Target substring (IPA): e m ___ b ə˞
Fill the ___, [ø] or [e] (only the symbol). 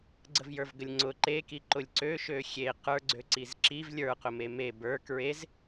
e